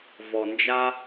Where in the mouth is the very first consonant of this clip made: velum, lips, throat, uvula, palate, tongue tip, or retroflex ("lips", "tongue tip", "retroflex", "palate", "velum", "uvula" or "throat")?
lips